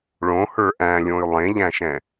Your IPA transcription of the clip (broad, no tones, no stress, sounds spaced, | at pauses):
ɭ õ h ə˞ ʔ æ̃ lʲ õ y̯ lˠ ẽ ʎ æ̃ ʃ ɛ̃